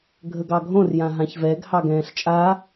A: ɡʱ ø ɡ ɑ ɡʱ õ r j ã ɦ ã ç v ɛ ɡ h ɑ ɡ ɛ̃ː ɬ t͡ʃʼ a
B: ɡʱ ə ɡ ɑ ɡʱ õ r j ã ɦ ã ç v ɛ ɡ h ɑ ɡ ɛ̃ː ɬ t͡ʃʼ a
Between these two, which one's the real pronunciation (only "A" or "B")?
B